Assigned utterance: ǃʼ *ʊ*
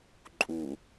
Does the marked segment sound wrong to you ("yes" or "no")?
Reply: yes